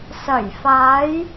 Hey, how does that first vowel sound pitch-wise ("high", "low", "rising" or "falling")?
low